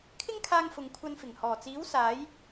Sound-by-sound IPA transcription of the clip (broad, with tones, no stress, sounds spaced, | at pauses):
kʰ ɪ˥ ŋ kʰ aː˧ ŋ f ʊ˨˧ ŋ kʷʰ ɐ˧ n f ɪ˨˩ ŋ h ɔː˨˩ t͡s iː˨˥ w s aː˨˥ j